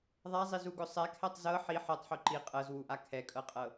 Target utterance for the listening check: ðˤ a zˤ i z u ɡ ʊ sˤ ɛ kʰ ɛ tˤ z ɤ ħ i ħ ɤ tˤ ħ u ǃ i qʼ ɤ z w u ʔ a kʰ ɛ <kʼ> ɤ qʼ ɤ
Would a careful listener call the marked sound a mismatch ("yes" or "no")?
no